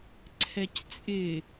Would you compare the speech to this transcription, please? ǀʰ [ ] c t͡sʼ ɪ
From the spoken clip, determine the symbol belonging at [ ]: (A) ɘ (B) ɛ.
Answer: B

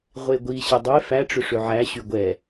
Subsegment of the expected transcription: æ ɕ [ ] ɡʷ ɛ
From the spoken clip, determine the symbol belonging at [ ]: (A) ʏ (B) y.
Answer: B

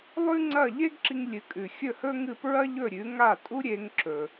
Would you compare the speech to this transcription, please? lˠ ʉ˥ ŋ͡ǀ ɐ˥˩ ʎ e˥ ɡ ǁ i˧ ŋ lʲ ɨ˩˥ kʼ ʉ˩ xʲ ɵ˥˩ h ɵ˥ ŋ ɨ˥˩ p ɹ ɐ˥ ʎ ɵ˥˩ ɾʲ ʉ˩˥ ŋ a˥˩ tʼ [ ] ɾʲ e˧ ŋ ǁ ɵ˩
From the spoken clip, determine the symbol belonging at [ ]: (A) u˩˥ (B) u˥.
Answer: B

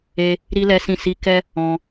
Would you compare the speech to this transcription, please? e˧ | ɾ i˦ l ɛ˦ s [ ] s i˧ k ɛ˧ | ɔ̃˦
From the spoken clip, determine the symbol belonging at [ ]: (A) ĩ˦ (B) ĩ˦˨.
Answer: B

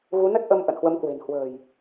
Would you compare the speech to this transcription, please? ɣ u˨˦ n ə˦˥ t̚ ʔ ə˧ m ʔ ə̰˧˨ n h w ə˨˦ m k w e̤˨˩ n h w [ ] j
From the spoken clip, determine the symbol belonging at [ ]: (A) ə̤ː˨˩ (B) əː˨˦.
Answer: A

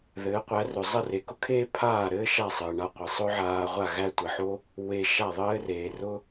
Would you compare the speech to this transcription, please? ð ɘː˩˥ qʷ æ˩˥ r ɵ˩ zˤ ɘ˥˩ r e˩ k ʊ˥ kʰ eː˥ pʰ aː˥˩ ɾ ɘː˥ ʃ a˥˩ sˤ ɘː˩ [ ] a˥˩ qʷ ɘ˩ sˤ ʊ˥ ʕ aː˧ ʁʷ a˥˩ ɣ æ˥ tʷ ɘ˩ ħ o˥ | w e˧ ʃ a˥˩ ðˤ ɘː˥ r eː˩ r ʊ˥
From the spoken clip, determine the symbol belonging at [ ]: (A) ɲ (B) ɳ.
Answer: B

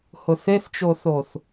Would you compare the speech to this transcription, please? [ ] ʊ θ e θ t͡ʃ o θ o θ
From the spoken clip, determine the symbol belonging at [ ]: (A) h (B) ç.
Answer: A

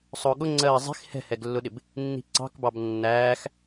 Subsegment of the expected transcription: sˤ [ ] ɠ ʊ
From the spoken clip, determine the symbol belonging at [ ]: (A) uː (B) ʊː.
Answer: B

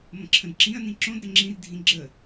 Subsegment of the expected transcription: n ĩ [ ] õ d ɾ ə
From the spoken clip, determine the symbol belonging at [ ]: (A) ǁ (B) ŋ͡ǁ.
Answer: A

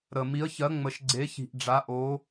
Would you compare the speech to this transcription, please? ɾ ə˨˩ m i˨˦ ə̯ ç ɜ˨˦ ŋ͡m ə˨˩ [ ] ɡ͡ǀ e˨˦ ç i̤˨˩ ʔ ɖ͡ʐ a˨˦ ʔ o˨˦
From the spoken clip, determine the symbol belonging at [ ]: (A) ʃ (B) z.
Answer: A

